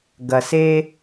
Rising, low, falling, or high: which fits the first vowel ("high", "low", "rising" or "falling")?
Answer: low